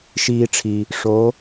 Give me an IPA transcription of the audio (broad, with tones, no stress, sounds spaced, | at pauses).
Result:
ʃ iː˧ ʈ͡ʂʰ i˨ | ʂ o˨˦